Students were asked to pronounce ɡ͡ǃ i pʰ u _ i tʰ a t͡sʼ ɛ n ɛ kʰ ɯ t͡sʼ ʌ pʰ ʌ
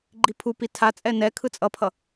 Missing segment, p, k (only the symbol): p